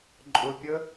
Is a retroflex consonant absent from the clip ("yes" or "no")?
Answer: yes